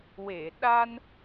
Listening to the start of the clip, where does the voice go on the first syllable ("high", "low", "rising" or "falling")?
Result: low